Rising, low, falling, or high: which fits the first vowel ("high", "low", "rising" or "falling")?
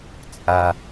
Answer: high